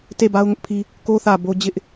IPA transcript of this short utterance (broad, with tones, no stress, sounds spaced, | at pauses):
t e˦˨ b a˦ ʊ̯ ŋ ʊ˦ ʔ pʰ i˦ | k o˦ θ ä˨ b o˦ d͡ʑ ɪ˦ ʔ